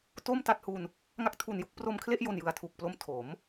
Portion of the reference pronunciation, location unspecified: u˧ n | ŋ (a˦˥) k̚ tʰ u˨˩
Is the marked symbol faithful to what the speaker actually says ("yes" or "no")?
yes